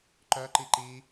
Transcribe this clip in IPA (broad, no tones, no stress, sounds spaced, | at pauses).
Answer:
ǃ œ ǃ i ǃ i